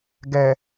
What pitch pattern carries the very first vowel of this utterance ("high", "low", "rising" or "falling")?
low